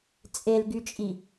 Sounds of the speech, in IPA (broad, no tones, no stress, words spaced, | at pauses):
t͡sʼelɡyt͡ʃʼi